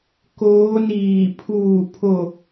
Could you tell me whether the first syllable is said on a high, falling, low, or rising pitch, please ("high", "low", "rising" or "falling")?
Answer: rising